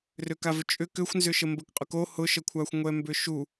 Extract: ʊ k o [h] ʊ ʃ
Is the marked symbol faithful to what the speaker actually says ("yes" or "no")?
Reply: yes